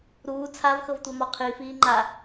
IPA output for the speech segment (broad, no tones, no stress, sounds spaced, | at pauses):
ɾ uː t͡sʰ a v x ɤ v tʷ ɛ m ɔ qʰ i f iː ŋ͡ǃ a